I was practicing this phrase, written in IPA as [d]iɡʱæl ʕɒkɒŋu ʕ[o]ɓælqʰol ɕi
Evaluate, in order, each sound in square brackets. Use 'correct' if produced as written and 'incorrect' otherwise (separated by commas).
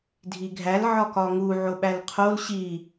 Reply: incorrect, correct